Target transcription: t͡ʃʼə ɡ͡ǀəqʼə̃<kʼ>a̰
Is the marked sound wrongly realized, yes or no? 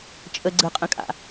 no